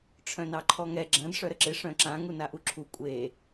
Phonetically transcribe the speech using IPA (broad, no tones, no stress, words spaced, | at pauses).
ʈ͡ʂʰœ̃nɑǃʰɔŋɛ ɡ͡ǁɐ̃d ʂœɾəǁɪ ʂœ̃ǁã ŋunaʔuǁʰu kʷʼe